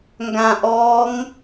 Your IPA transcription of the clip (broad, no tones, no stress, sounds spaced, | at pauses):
ŋ ɡ ã ʔ ɔː ŋ